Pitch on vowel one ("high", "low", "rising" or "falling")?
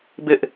high